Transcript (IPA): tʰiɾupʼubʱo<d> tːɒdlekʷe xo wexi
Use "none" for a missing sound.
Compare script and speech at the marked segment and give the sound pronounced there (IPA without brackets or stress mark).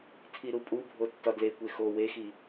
none